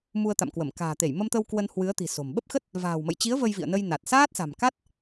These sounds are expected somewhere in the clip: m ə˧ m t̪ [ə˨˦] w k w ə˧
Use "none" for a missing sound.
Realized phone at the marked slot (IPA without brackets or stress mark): ə˧